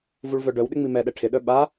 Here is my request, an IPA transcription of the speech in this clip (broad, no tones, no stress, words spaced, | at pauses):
vuɭvœɖœwɗɪ ŋ͡mimɛɗɛ ʈʰɪɗœ ɓa